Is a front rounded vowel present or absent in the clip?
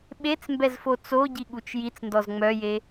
present